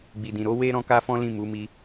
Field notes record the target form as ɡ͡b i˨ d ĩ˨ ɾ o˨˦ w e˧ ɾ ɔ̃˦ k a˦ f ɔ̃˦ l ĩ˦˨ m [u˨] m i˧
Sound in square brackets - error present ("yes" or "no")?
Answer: yes